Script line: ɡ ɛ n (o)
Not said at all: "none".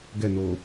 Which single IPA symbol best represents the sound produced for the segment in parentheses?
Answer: o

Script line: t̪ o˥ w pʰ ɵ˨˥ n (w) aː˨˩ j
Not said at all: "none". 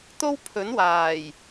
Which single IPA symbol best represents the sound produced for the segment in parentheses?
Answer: w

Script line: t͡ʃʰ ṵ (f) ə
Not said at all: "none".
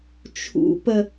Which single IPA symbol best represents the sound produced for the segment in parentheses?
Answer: p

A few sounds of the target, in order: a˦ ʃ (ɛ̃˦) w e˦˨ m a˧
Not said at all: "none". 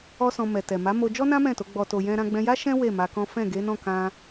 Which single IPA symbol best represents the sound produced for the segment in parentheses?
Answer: ɛ̃˦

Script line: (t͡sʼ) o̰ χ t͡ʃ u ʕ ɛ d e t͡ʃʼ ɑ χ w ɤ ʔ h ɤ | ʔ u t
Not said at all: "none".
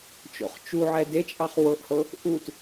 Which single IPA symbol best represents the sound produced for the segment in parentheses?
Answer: t͡ʃ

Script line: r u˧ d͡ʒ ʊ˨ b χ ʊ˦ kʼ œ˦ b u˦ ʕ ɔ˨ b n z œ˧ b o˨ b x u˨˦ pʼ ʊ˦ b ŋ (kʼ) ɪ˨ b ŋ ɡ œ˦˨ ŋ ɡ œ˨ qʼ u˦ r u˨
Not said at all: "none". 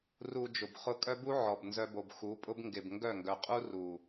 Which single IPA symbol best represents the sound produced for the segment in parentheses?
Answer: ɡ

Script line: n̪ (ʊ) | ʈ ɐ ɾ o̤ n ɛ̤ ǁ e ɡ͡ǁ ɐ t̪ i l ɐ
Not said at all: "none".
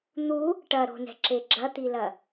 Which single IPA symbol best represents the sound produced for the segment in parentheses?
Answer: u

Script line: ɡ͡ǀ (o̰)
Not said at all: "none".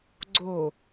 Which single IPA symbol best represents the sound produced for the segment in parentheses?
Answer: o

